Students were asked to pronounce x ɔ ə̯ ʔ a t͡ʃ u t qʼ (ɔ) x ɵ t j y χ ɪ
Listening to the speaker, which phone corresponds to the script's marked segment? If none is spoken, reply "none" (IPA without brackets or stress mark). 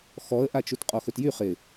ɔ